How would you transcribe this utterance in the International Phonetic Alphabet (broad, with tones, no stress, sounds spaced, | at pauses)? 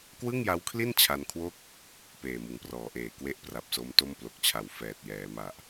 k w ɯ˥˩ ŋ j a˦˥ w kʰ l i˥˩ n t͡ɕʰ a˧ n kʰ w o˥˩ k̚ | p eː˨˩ m ɯ˩˦ ŋ p r ɔː˩˦ ʔ eː˨˩ k w e˥˩ ʔ p r a˨˩ p̚ s o˦˥ m t o˥˩ m p l o˨˩ k̚ t͡ɕʰ a˨˩ w f ɛː˨˩ t̚ j ɛː˩˦ m a˨˩ ʔ